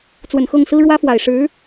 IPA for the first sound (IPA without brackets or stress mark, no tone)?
t͡s